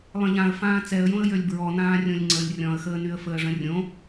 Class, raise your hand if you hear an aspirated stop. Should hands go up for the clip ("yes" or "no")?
no